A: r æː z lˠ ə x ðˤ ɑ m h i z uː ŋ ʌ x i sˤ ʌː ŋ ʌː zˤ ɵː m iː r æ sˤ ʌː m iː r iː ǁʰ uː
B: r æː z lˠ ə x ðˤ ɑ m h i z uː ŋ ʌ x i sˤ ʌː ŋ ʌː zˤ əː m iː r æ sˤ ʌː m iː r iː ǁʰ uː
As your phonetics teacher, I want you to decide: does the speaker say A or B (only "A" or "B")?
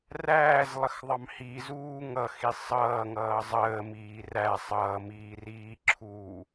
B